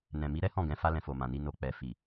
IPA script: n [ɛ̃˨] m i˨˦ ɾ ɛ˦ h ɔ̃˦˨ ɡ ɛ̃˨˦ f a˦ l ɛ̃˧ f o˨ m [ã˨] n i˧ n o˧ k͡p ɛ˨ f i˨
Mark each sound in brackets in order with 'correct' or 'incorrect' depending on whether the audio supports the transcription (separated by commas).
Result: correct, correct